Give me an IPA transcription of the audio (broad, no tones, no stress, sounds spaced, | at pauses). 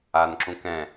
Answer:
a n ǁ ũ k ɛ̃